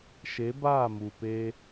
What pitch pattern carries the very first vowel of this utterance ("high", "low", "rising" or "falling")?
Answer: rising